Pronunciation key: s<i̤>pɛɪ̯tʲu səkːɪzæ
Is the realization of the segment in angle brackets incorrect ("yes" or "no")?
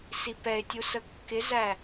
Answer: yes